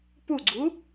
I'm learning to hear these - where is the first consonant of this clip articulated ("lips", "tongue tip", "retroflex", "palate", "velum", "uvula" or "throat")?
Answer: lips